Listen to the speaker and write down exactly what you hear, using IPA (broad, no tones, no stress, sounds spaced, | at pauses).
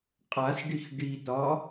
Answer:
qʼ a s ɖ i x ɖ i t ɒ